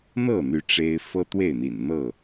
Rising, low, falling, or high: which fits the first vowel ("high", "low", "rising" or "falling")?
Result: falling